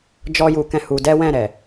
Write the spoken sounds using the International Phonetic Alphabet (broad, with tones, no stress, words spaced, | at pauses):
d͡ʒɔ˦ju˧kɛ̃˦ hu˦ dɛ˦wɛ̃˦˨ɾɛ˨